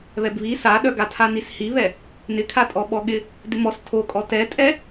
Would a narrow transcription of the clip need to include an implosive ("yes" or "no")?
yes